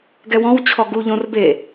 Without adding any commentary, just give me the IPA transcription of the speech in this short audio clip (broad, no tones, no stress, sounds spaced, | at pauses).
ɡ ɛ w ɔ̃ w t͡ɕʰ ɔ ɡ u ʎ õ r b e